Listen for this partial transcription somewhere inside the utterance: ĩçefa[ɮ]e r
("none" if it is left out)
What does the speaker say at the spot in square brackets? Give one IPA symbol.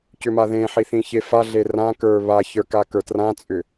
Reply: ɮ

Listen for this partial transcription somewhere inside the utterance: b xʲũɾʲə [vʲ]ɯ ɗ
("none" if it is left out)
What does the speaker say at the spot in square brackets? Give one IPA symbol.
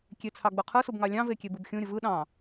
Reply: v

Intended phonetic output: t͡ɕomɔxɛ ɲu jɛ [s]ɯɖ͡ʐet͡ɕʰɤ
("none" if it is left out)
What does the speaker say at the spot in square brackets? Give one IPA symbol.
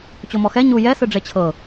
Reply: s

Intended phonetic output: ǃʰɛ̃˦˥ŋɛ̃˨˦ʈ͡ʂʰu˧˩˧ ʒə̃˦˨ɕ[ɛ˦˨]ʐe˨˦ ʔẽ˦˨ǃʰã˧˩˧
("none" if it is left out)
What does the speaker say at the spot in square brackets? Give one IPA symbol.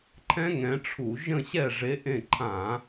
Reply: ɛ˦˨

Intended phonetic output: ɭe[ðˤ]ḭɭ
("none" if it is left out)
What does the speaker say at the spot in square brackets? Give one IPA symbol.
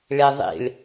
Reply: ðˤ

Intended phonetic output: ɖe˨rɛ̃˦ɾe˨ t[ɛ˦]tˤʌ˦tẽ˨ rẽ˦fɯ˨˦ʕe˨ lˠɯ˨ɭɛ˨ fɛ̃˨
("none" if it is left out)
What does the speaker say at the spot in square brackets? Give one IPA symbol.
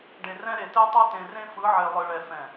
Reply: e˦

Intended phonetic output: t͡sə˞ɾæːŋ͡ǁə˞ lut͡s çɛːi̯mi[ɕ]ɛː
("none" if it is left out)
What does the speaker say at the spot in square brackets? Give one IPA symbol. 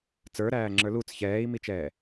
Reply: t͡ʃ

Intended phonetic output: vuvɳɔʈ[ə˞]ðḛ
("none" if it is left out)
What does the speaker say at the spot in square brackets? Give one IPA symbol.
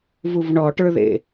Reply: ə˞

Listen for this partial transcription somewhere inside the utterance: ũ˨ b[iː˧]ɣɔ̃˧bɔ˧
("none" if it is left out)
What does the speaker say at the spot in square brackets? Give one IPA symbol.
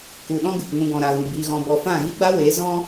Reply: iː˧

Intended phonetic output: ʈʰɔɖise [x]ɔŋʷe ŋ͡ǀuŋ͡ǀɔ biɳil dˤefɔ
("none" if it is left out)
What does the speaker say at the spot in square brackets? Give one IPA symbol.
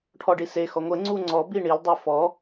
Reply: x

